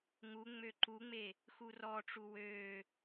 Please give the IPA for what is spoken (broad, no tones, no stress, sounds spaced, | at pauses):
ŋ u ŋ͡m ø ǃ u ŋ͡m e | x u r ɔ ʈ͡ʂ u w ø